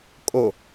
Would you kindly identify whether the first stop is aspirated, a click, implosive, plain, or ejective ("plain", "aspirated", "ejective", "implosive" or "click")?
ejective